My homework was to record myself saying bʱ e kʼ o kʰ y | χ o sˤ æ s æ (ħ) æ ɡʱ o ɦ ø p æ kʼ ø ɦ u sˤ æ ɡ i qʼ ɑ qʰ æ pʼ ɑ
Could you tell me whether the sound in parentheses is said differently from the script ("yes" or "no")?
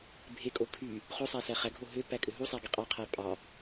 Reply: yes